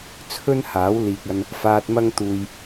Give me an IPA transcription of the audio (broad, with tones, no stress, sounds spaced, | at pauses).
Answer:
t͡sʰ ɵ˥ n h aː˨˥ w l iː˨ k̚ ɐ˧ n | f aː˨ t̚ m ɐ˧ ŋ t̪ uː˨ j